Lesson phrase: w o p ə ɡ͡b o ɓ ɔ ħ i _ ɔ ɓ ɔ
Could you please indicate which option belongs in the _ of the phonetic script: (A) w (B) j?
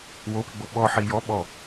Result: B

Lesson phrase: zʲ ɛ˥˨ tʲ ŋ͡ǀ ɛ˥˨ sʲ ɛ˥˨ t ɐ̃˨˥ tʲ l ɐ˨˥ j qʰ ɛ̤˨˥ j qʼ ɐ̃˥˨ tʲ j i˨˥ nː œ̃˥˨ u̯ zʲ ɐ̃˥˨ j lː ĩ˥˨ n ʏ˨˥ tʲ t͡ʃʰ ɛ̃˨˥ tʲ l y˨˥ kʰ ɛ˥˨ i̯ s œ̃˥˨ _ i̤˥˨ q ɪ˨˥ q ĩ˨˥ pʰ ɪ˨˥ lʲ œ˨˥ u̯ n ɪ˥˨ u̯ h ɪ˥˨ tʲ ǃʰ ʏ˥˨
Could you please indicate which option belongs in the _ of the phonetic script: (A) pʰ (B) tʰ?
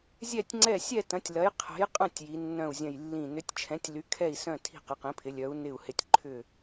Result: B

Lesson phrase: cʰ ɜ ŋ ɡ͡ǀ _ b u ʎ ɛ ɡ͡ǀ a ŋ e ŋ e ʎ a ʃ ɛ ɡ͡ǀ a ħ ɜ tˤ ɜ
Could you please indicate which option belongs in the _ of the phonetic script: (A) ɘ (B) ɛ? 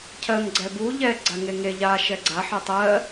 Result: B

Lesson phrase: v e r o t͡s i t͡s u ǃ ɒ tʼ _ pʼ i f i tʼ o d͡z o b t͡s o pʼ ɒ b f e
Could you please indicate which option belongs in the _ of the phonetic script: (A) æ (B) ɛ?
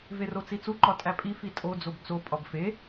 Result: A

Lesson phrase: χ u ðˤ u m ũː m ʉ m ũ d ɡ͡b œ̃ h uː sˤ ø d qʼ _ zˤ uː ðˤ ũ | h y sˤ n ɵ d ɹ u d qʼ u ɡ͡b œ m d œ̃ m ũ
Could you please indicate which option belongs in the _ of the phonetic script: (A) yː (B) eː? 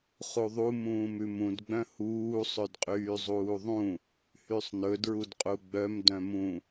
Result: A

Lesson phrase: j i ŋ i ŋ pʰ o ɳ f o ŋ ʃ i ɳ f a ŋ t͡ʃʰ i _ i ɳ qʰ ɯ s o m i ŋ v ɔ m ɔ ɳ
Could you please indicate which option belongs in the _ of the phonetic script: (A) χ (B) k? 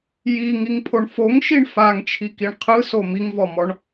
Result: B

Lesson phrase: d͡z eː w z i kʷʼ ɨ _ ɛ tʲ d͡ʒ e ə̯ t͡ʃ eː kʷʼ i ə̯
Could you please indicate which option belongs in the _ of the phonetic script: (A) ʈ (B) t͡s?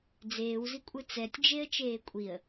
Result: B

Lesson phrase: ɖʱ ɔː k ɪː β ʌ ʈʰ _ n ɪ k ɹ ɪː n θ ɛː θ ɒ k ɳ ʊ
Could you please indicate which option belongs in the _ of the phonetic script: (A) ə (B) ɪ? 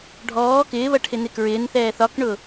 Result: B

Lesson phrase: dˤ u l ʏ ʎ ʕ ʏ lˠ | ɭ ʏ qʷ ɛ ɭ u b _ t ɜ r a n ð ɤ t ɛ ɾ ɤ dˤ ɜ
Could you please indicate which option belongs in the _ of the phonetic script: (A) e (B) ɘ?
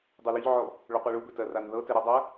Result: B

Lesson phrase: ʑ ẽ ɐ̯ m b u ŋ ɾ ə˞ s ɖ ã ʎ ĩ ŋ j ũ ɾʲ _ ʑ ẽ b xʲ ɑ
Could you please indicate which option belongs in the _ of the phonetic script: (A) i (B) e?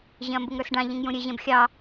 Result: B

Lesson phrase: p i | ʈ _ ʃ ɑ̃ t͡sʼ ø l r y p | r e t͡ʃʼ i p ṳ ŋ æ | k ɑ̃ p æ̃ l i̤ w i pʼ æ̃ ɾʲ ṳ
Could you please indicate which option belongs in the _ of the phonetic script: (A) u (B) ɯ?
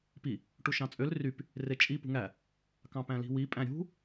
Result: A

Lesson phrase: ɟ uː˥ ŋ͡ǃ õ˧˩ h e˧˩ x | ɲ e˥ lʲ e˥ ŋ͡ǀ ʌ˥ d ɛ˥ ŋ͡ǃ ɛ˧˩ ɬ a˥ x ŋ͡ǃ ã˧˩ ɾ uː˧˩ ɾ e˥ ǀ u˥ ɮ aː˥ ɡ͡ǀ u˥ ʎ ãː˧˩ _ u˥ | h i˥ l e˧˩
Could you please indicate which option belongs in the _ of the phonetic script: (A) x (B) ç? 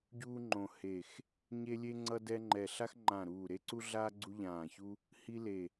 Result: B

